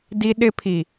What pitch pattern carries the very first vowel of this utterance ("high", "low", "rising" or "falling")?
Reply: high